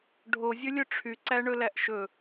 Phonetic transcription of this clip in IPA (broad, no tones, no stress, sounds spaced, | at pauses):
ɖʱ o zʲ ɵ lʲ ɵ ʈ͡ʂʰ y ǀ æ ɳ ɵ l æ ʔ ʃ ɵ